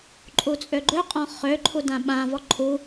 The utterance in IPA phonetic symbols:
ǃʼ u t͡sʼ ø ɡ͡ǃ ø qʼ ɔ̃ χ ø ǃʰ u d ã ɓ ã v ɔ ǃʰ u

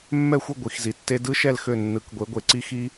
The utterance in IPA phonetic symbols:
mː ɛ˦˨ xʷ ɯ˦˨ ɡʷ i˨˩˦ x z i˨ tː e˦ d ɯ˦ ʃ ɛ˦˨ l x ø˦˨ nː ɯ˨˩˦ k ɡʷ e˨˦ ɡʷ e˨ ǀ i˦ x i˦

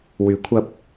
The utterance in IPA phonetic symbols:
w yː˨˥ kʷʰ ɐ˧ p̚

